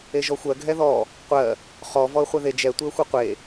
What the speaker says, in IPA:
e ʒ ɔ xʷ ɜ ɡʱ ɛ ð ɔ | qʷ ɜ | χ ɔ v ɔ ə̯ χʷ ɛ ð e d͡ʒ ɛ tʷ e ə̯ xʷ ɨ qʷ e

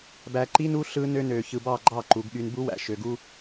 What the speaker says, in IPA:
b æ˨ ǃ i˦ n u˦ ɬ ɯ˦ n ø˦ n ø˨ ç ɯ˨ b ɑ˦˨ ɡ͡ǃ ɑ˦˨ ǃ u˨˦ ɡ ɠ y˦ n b u˦ w æ̰˨ ʃ ø˨ ɡ u˦

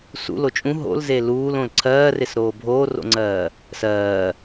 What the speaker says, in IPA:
s ṵ l o t͡ʃʼ ũ ɦ o̰ l z e l uː l õ l ǀʰ ɜː r e s ɾ oː bʱ oː r o̰ ŋ͡ǀ ɜː | s ɜː

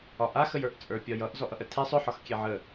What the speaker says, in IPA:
ɒ ʔ a x ə j ə˞ ʔ t͡sʼ ə˞ pʲ ɒ j ʌ ʔ z ɔ ʔ ʌ ʔ ə tʰ e sˤ ʏ ħ ɒ x kʲ e ʕ ə

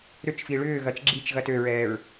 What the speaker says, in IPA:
ɾ ʏ t͡ʃ f i ɭ ʏː ɣ ɐ t͡ʃ ɡ͡ǁ i t͡ʃ ɣ ɐ t ø ɹ ɛː ɹ

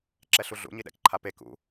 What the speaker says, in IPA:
ǁ ɛ ɬ u ɮ ṵ ɲ i ɗ ɛ̰ k ǃʰ a p e k ṵ

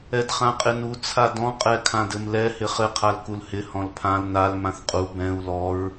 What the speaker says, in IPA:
ɛ d χ ã qʼ ɪ n u t͡sʰ a d ɔ̃ qʼ ɛ kʰ ã d ɘ m l ɛ h ɪ χ ɘ qʰ a l k u l h ɪ h ɔ̃ l pʰ ã l n a l m ã θ qʼ u b ɛ̃ u̯ l ɔ ɹ

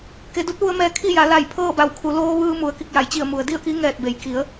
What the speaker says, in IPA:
k e˩˧ d u˧˥ t̚ ʋ u˧ ə̯ m ɛː˧ kʰ i˥˨ j a˩˧ l a˧˩ j pʰ ɤː˥˨ b a˧˩ w kʰ u˩˧ l oː˧ ʋ ɯː˧ m u˩ ə̯ k i˧˩ k̚ j a˩ j t͡ɕ i˧˩ ə̯ m u˩ ə̯ d i˥˨ ə̯ k i˧˥ ŋ ɛː˧˩ t̚ b e˩ j k i˩˧ ə̯

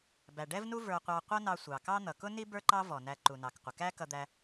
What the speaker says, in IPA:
b æ˩ ɖ ɛ˥ v n u˥ v ə˞˧ qʷ ɑ˧ qʷ ʌ˥ n ɑ˧ sʷ ɑ˩ k ɑ˥ n̪ ʌ˩ k ʊ˥ n i˥ b ə˞˥ ǃ ɑ˥ v ɔ˩ n æ˧ ǃ u˩ n ɑ˩ k qʷ ə˩ k æ˥ k ʌ˧ d̪ æ˧

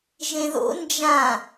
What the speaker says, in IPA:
ʒ ẽ ð o̰ n d͡ʒ ã

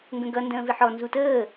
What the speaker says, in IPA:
ŋ ɡ ə̃ ɡ ʌ n d ə̃ː v ɪ ħ ɔ n z u t əː

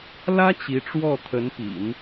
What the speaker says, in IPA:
l ä˥ t͡ɕ i˧˥ ʈ͡ʂ w ɔ˥˩ t̪ʰ ə˧˥ n p ḭ˨˩˦ n

